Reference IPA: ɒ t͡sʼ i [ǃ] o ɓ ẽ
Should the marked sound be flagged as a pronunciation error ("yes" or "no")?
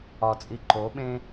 no